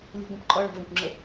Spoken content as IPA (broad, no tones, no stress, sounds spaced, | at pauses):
lʲ ə̤ ɡʷ ə̃ p ǃʼ ɒ ɭ ɔ̤ v ɛ̃ kʷ ŋ͡ǁ ə